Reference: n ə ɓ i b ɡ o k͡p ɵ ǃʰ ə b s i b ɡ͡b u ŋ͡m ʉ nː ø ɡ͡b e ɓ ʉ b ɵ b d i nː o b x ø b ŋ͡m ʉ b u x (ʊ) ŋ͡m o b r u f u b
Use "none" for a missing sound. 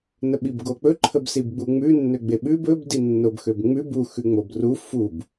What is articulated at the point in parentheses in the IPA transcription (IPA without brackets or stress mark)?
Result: ʉ